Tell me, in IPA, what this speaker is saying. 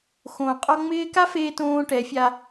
x õː˨ qʼ ɔ˧ ŋ͡m ɪː˦ k a˦ f eː˧ t õː˧ ʈ ɛ˨˦ fʲ a˧

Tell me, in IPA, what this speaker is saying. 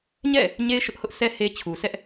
ɲ ɛ̰˦˨ | ɲ e˦ ɪ̯ ʃ ʊ˦ ʔ h ʊ˦ ʔ s ɛ˦ h e˦ t͡ɕʰ u˨ s ɛ˦ ʔ

